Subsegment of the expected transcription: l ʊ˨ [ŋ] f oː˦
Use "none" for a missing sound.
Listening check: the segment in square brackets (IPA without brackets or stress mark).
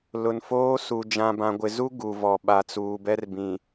n